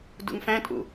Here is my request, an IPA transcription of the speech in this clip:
d ṵ ŋ f æ̃ tʼ ṵ

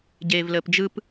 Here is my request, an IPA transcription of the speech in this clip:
ɟ eː v l əː p d͡ʒ ɯ p

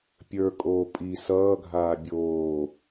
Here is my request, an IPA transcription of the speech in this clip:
pʲ ə˞ kʼ oː pʼ i s ʌː ɡʱ aː bʲ oː

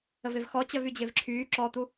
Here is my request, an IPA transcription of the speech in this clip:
ə v e v x ɔ t͡ɕ œ v y d͡ʑ e v ǁʰ yː ǁ ɔ t̪ u

